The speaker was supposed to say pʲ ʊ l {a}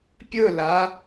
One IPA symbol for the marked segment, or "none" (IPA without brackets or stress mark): a